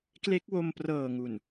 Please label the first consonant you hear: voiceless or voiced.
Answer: voiceless